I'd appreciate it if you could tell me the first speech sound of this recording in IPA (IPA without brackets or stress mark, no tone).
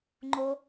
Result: ŋ͡ǃ